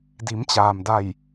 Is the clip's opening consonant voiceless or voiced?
voiced